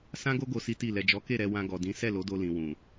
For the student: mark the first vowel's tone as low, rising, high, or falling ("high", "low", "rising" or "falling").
high